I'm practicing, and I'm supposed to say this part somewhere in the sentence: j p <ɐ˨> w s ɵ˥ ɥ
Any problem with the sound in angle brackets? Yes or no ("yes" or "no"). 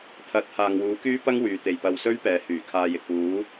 no